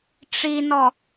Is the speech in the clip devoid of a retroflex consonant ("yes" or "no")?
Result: no